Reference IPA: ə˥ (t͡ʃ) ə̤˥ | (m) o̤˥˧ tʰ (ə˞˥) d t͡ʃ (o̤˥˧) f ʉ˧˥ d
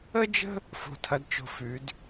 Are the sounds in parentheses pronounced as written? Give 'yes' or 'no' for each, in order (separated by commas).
no, no, no, yes